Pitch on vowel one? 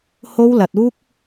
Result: high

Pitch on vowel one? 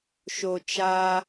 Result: low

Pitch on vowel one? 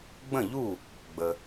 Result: falling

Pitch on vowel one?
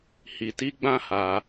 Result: low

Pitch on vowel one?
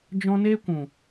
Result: high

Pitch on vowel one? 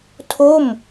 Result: falling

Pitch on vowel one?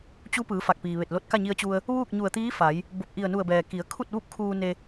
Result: rising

